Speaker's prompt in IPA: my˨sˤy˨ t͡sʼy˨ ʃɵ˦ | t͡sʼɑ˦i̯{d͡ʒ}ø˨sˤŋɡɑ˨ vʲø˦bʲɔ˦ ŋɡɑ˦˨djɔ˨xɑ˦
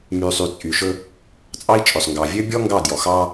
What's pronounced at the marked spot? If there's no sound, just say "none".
t͡ʃʼ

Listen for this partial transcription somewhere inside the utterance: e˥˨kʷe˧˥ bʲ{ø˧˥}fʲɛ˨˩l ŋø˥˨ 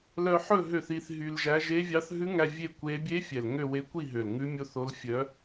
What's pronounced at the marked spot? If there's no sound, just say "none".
e˧˥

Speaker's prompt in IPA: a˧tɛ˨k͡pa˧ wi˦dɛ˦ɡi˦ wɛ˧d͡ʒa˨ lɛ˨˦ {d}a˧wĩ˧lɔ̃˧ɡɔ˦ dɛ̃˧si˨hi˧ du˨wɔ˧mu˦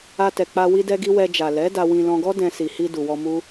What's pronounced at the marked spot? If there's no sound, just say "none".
d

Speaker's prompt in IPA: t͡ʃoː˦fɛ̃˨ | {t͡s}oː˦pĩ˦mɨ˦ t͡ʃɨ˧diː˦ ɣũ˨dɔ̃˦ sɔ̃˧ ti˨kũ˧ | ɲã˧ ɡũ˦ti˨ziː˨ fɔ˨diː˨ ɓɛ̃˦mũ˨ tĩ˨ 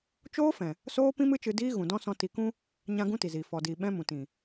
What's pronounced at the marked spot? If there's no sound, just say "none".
s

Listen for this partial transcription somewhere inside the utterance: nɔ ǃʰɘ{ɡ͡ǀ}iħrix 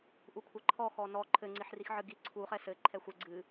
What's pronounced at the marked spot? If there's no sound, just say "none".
ŋ͡ǀ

